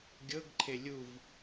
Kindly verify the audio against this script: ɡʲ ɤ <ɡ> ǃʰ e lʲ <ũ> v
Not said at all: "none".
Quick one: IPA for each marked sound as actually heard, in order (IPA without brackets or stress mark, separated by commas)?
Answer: ɡ, u